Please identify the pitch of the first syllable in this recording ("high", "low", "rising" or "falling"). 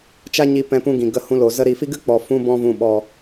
high